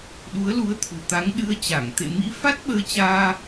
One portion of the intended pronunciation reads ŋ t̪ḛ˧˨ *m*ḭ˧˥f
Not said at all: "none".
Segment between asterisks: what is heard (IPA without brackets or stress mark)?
m